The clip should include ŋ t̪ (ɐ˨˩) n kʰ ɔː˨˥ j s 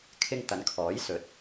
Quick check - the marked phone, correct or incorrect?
incorrect